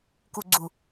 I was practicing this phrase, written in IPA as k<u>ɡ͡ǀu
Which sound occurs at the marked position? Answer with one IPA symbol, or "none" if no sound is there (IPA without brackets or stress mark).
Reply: u